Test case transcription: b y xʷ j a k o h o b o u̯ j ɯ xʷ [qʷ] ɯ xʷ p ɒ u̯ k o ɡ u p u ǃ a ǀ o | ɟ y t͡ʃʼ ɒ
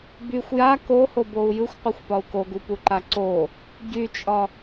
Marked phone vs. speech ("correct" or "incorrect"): correct